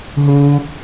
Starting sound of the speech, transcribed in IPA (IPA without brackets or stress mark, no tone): ɦ